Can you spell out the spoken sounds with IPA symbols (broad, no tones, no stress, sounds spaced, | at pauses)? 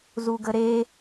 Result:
z u ɡ ə ɾ e